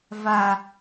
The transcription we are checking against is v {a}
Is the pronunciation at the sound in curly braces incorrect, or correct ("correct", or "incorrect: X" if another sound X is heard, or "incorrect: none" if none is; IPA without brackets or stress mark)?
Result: correct